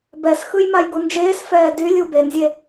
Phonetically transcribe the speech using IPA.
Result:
b ɛ s x ɯ j m a j ɡ u n d͡ʒ eː s f ɛː d y lʲ u b e n zʲ e

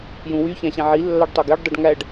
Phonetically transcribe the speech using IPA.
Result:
j ũ w y ç æ̃ ɕ ẽ ʕ i lː ɑ ɖ tˤ o ɡ e ɖ dˤ e ɖ ŋ æ ɖ

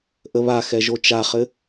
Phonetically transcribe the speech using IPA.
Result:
ʔ ə β a x ɛ ʒ o t͡ʃ a χ ɘ

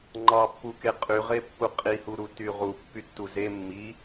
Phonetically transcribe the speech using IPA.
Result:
ŋ͡ǃ ɑ pː u k e qʼ y ʁ e pː u qʼ i h u ɾ u t y ʁ u pː y tː u z e mː i

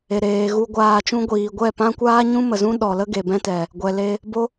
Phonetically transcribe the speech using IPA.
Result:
e˨ ɾ eː˨ ɣ u˧ ɡʷ aː˧ t͡ʃ ũ˦ ɡʷ iː˨ ɡʷ ɛ˦˨ p ã˦ kʷ aː˦ ɲ ũ˦ m ə˨ z ũ˦ ɗ ɔ˨ l ə˦ ɡ e˨ b ɛ̃˦ t ɛ˨ | ɡʷ ɛ˨ l e˧ | b o˦

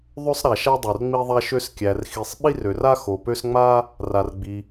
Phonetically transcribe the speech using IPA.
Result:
ðˤ ø˥ sˤ ɾ a˨ ʃ a˥ dˤ o˨ r ŋ͡m i˥ ðˤ a˥ ʃ ø˥ s kʲ æ˨ r x i˨ sˤ ɓ i˥ r ø˨ r a˥ x o˨ p ø˥ s ŋ͡m a˥ | r a˨ r ɡ͡b i˨

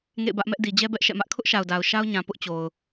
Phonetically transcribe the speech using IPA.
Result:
ŋ ḛ˦˨ ɪ̯ b ä˦ ʔ m ɛ˦ ʔ d i˨ d͡ʑ ɛ˦ b ɛ˦ ʔ ʃ ɛ̰˦˨ m ä˦ ʔ kʰ ʊ˦ ʔ ʃ a˨ ʊ̯ d a˨ ʊ̯ ʃ a˦ ʊ̯ ɲ ã˨ p ʊ˦ ʔ t͡ɕ o˨ ʊ̯

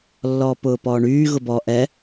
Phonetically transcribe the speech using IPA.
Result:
lː ɔː p ʊː p ɔː ɳ yː ɣ ʊ b ɔ ʔ ɛ

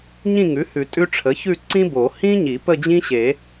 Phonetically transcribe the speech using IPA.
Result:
ɲ ĩ˥˧ ŋ ʉ˩˥ h ʉ˨˩˦ tʼ ʉ˥ ʈ͡ʂʰ ə˩˥ ç ʉ˥˧ ǀ ĩ˥ b o˨˩˦ h ĩ˥ ɲ i˨˩˦ p ə˥˧ d͡ʑ ĩ˥ ɕ e˨˩˦

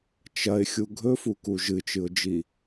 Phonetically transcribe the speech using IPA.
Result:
t͡ʃ ɐ ɪ̯ xʲ u ɡʱ ɵ f u k u ʒ ɨ t͡ʃ ɨ ʊ̯ d͡ʒ i

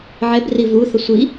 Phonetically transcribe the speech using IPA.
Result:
ʕ ɛ b r i v u θ ə sʷ i

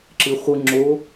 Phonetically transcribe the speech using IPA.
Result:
ǁ ɨ χʷ ɯ ŋ͡ǁ o

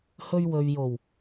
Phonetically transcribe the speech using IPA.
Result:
h ɵ˧ ɥ w ɵ˨ ɥ j o˨˩ w

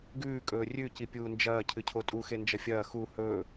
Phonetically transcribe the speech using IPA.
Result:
ɡ ʉː kʼ ɵː rʲ ʉ c i pʲ uː n d͡ʒ ɐː cʰ ɨ cʰ o tʼ u x e n d͡ʒ ɐ fʲ ɐː x u h ɵː

